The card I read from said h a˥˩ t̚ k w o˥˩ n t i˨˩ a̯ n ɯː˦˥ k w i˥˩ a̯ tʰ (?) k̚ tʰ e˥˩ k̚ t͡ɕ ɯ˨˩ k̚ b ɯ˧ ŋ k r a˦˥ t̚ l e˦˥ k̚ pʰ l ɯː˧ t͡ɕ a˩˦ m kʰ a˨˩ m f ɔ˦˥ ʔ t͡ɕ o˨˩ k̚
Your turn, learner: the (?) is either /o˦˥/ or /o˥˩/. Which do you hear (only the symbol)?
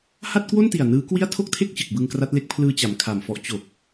o˥˩